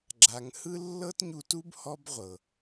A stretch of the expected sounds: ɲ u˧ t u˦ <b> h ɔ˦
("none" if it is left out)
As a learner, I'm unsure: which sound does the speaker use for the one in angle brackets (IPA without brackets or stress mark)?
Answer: b